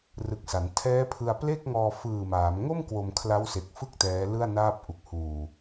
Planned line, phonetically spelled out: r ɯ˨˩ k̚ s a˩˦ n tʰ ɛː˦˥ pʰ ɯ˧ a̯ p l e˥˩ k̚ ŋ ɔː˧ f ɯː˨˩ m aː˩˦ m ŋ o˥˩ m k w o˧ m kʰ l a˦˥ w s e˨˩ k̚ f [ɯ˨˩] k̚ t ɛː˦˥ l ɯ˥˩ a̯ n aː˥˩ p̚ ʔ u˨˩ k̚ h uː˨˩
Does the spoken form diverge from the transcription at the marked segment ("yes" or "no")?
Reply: yes